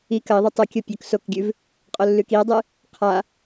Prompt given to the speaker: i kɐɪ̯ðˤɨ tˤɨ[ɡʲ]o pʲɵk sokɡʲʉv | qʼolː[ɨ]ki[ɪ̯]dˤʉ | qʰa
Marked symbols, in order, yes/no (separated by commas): no, no, no